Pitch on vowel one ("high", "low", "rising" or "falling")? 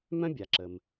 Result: high